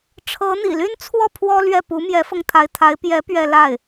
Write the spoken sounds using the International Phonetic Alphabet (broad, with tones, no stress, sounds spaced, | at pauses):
ʈ͡ʂʰ ɤ˧˥ n̪ ḭ˨˩ l y˥ n t͡sʰ w ɔ˥˩ pʰ w ɔ˥ l ɥ ɛ˥˩ p u˧˥ m j ɛ˧˥ f ɤ˧ ŋ t̪ʰ a˧˥ ɪ̯ t̪ʰ a˧˥ ɪ̯ p j ɛ˧˥ p ɥ ɛ˥˧ l a˥˩ ɪ̯